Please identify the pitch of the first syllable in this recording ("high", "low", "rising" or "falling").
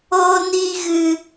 high